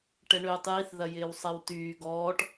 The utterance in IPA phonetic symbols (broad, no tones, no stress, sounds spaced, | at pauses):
ʈ ɛ ɳ øː tˤ j i θ ð ɐ j ɪː w sˤ ɛ w t yː ɡ ɔː ʈ